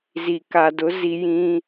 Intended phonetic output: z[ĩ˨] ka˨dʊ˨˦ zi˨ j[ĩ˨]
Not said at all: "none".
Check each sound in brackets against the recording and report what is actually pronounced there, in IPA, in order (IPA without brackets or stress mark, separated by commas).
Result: i˨, ĩ˦